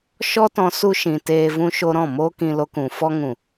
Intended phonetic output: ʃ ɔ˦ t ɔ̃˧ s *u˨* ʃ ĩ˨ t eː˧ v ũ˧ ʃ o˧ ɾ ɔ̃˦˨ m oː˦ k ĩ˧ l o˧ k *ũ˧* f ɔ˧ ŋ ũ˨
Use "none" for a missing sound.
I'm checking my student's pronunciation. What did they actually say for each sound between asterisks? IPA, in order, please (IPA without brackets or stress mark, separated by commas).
u˧, ũ˨